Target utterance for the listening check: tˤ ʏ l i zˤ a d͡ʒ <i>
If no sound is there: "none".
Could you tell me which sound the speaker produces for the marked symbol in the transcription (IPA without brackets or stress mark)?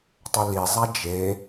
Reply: e